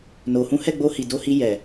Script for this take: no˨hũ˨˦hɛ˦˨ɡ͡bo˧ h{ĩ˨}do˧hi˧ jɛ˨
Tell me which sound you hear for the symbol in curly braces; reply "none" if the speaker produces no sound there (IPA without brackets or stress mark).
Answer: i˨